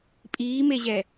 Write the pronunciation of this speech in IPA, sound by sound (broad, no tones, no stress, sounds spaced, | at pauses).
pʼ iː m e ʑ ɛ